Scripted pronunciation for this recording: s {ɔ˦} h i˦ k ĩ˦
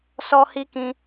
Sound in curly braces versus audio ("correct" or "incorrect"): correct